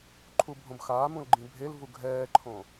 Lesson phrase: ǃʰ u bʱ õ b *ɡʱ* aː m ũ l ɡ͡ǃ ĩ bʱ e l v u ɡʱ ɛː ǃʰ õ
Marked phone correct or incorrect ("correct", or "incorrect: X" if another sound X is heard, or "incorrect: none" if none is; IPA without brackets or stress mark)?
incorrect: x